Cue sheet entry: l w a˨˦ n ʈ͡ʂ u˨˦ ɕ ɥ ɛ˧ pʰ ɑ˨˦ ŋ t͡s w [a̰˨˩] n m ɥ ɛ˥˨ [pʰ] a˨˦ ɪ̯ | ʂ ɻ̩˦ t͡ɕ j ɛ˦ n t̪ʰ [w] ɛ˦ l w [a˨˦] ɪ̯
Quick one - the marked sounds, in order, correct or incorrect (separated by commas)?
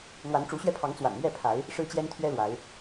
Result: correct, correct, incorrect, correct